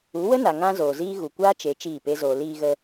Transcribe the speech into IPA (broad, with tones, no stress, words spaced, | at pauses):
u˨˦wə˦na˨ ŋã˦zoː˨ziː˦ ɣu˨kʷaː˦t͡ʃe˨˦ t͡ʃiː˦˨pe˦zoː˧ liː˧ɣə˧